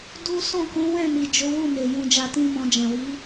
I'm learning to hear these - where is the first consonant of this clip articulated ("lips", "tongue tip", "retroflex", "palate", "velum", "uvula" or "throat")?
tongue tip